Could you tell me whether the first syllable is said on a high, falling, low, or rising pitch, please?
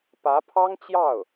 rising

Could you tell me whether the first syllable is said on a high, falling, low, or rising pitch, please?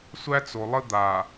high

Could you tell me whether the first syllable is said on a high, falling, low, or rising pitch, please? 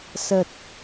low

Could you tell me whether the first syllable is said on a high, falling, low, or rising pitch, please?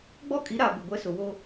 high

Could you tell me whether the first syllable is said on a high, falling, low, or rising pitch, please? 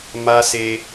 high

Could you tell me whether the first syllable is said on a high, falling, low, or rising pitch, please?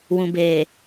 low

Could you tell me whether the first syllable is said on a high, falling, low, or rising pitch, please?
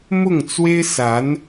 falling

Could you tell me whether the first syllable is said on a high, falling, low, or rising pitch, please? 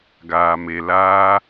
low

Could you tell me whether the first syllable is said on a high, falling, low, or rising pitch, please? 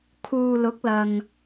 low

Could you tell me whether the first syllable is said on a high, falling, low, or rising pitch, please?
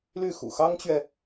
falling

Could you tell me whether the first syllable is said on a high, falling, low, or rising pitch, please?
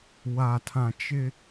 low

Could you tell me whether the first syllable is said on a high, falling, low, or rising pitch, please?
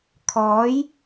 rising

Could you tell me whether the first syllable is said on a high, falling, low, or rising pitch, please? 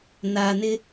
low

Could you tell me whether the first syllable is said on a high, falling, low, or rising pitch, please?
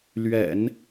low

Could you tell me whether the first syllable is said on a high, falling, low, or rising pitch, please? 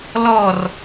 falling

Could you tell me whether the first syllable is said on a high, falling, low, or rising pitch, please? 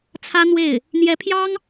high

